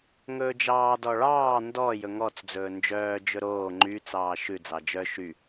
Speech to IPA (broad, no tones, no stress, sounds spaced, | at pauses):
ŋ ɵː d͡ʒ ɑː d ɔ ɭ ɑː n d ɔ j ɵ ŋ ɔ t͡s d͡z ɵː n d͡ʒ œː d͡ʒ ɵ ɾ oː ŋ͡ǃ y t͡s ɑː ʃ ʉ d͡z ɑ d͡ʒ œ ʃ y